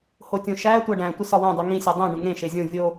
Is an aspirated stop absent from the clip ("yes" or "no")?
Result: yes